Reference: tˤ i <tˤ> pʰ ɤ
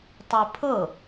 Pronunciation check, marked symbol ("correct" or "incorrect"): incorrect